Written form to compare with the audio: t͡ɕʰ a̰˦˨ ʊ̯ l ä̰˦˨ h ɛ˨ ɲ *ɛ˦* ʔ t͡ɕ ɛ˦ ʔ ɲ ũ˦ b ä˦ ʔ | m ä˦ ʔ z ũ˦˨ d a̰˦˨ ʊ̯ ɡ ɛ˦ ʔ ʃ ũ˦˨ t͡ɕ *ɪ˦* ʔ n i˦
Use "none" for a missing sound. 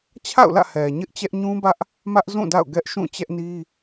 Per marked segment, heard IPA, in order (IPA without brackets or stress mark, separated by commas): ɪ˦, ɛ˦